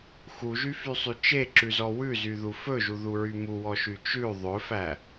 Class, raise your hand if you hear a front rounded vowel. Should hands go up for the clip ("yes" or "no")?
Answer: yes